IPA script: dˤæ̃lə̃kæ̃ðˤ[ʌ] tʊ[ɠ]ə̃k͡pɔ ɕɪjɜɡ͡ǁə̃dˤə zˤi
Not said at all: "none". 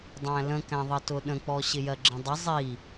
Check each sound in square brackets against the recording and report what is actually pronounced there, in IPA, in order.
ʌ, ɗ

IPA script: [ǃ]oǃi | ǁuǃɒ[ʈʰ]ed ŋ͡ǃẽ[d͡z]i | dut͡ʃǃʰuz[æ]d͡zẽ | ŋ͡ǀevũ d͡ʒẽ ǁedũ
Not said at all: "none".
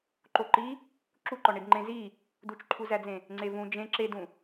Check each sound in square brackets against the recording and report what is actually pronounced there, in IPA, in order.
ǃ, ɳ, z, æ

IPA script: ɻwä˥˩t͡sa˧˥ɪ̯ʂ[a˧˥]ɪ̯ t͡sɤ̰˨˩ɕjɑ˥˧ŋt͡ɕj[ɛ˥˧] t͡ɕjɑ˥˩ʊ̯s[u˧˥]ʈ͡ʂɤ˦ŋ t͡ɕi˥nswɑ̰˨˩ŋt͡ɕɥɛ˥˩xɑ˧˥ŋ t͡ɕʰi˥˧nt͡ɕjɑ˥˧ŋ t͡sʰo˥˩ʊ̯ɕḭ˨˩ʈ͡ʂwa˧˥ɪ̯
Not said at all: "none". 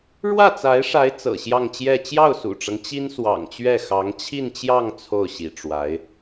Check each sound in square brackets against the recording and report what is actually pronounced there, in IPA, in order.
a˧˥, ɛ˥˧, ṵ˨˩

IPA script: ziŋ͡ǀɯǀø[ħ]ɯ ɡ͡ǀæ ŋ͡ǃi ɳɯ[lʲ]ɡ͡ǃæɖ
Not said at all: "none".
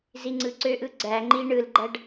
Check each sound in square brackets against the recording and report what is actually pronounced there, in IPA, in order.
ʔ, l

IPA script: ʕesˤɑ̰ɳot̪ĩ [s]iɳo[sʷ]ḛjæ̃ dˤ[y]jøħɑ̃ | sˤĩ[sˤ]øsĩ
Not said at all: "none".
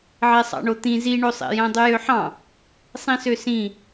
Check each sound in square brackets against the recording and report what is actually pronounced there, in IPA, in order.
z, sˤ, y, s

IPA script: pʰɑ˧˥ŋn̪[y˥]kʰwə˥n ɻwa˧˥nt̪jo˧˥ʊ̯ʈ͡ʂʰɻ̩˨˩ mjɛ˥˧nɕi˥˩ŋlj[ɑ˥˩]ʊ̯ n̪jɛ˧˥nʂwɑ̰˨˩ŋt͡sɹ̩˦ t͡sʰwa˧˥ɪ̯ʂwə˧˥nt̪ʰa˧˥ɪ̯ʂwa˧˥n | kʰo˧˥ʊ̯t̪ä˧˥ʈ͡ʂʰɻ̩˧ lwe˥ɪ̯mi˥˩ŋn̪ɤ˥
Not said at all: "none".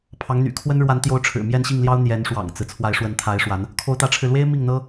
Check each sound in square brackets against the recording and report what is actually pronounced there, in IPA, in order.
y̰˨˩, ɑ˥

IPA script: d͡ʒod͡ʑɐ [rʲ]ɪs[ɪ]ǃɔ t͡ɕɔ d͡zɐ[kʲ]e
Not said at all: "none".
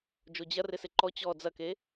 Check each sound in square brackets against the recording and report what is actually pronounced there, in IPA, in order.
r, ɪ, k

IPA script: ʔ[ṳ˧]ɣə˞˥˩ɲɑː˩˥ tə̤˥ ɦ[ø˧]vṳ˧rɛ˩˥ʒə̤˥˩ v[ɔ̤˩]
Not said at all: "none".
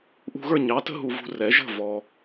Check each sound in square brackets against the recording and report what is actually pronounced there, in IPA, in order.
ṳ˧, u˧, ɔ˩

